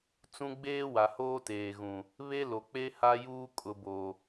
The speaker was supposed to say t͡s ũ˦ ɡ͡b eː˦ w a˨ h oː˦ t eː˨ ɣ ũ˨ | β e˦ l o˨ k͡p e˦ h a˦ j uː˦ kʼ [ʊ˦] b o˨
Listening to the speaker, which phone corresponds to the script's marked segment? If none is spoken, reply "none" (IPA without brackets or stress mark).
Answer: ʊ˨